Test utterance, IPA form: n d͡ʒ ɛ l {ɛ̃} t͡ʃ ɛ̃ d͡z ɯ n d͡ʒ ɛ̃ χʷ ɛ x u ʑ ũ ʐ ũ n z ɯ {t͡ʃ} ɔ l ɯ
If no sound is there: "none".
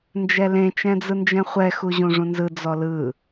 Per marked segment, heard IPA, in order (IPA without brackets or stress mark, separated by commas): ẽ, d͡z